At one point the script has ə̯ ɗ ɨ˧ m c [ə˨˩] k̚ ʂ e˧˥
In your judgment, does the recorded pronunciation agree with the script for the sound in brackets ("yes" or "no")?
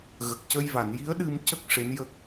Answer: no